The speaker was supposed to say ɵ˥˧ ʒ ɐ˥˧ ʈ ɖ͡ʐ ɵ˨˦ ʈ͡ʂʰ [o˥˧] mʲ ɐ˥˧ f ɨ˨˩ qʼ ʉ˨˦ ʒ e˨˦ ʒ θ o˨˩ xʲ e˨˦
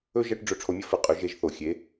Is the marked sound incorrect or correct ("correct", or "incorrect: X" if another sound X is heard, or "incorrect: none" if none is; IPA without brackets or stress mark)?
incorrect: o˨˦